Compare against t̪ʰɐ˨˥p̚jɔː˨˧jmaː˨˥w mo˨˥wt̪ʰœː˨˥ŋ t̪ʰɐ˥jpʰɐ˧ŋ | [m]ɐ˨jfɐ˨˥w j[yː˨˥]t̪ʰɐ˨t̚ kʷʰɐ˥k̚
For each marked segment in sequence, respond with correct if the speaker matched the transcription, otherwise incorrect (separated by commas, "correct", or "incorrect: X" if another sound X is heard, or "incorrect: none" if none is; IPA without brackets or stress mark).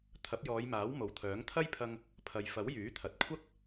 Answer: incorrect: pʰ, correct